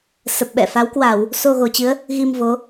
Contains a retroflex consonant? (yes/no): no